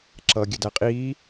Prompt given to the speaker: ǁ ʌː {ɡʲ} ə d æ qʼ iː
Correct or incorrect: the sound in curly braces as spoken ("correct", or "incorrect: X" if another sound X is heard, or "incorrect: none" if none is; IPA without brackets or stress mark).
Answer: correct